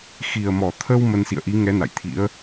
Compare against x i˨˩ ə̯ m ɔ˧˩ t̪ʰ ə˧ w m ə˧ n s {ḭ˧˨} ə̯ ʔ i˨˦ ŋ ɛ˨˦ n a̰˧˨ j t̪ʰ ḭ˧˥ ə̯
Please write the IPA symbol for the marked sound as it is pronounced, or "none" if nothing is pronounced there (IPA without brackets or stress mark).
ḭ˧˨